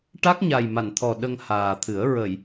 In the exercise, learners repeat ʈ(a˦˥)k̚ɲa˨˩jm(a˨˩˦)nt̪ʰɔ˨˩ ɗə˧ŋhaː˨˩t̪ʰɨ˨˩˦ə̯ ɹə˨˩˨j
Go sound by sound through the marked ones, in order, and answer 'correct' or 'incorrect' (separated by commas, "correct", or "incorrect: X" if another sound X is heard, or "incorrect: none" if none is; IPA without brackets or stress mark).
correct, incorrect: a˨˩˨